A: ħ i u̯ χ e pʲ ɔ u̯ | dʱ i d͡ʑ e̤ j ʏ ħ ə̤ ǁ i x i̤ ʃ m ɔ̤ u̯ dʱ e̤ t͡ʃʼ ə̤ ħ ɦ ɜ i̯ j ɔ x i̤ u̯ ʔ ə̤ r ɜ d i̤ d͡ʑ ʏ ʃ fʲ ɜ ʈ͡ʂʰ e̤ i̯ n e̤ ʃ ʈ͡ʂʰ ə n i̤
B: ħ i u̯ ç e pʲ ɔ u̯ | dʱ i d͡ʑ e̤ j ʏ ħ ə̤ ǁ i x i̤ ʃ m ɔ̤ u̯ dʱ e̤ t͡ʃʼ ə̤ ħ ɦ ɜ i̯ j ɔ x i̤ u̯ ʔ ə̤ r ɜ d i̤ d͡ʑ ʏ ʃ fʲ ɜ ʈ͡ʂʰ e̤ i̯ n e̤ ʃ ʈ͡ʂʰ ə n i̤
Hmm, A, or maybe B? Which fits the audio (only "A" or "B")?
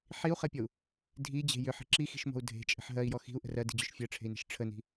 A